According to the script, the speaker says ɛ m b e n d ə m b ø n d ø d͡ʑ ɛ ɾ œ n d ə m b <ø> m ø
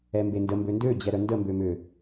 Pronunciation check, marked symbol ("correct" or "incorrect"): correct